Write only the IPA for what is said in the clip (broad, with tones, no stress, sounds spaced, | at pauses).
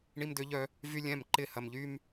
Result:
ɳ i˧ m d ø˧ ʎ œ˧ | v y˦ lʲ ɛ̃˦˨ m ǃ ɪ˦˨ h ɐ˧ m ʎ y˦ m